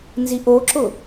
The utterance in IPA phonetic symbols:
n z i ʔ o ǁ ʊ

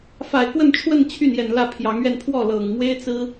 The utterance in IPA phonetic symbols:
f a˨˩ ɪ̯ k w ə˥˧ n ʈ͡ʂʰ w ə˥˧ n t͡ɕʰ y˥˩ n j ɛ˨˩ n l ä˥˩ pʰ j ɑ˧˥ ŋ ɥ ɛ˥˧ n pʰ w ɔ˥˩ l ɤ˨˩ ŋ m w e˥ ɪ̯ t͡s ɹ̩˥

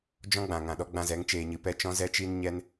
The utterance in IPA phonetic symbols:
d͡ʒ ɔ̃˦ ɡ͡b ã˨ ŋ ã˨ ɗ ɔ˧ ɡ͡b ã˧ z ɛ˨˦ ŋ t͡ʃ eː˧ ɲ ɨ˧ p ɛ˦ t͡ʃ ɔ̃˦ z ɛ˦ t͡ʃ iː˦ n ɲ ɛ˧ n

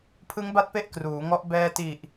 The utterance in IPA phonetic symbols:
pʰ ɯ˦˥ ŋ b a˦˥ t̚ p e˦˥ ʔ k r uː˩˦ ŋ ɔ˦˥ ʔ b ɛː˧ t i˨˩ ʔ

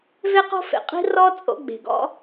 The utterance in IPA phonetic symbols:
v e˦ q o̤˦ f ḛ˨ qʼ i̤˦ r ɔ˦ t͡sʼ o̰˧ ɡ͡b e̤˨ ɡ ɔ̰˦

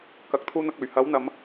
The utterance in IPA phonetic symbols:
k ɐ˨ k̚ t̪ʰ uː˧ n̪ ɐ˨ k̚ ɵ˨˩ ɥ h ɐ˨˥ w n̪ ɐ˨˧ m

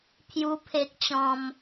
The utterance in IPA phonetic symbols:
pʰ j u˦ pʰ e˦ k̚ t͡ɕ ɔ̃˦ m

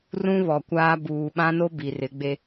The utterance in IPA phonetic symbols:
r ũ˦ β ɔ˨ kʷ aː˦ b uː˨ ɓ ã˦ n o˦ b i˨ r ɪ˨˦ ɡ͡b e˦

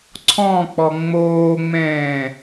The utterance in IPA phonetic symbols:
ǀʰ ɔ̃ k͡p ɔ ŋ͡m oː ŋ͡m ɛ̃ː

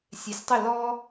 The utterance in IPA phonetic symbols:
sʲ e˩˥ sʲ tˤ ɪ˥˩ l ɔ˧

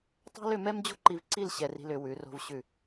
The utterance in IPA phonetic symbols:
tˤ ɛ̤˥ l ʏ˥˧ m ɛ˥ m d͡ʑ o̤˥ ǃ i˧ v ǀ i˥˧ l ɕ ɛ˧ r i̤˧ l ʏ˩˧ w ʉ˩˧ r o̤˧ v ɕ ʉ˧˩

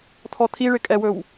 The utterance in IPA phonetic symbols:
t̪ʰ ɔ t̪ʰ i ɭ ɪ kʼ ɛ w ɵ w

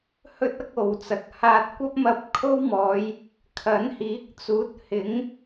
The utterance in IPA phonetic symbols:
h ɵ˥ t̚ ɐ˥ k̚ o˨ w t͡s ɐ˨ k̚ h aː˧ t̚ kʷ ɐ˥ p̚ m ɐ˧ p̚ kʰ o˥ w m ɔː˨˧ j | kʰ ɐ˨˥ n h iː˨˥ k̚ t͡s uː˨˥ t̚ h ɪ˨˥ ŋ

